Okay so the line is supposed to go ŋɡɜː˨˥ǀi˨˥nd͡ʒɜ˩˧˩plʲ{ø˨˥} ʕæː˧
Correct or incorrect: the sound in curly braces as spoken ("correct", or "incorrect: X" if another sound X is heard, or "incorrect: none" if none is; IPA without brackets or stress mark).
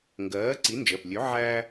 correct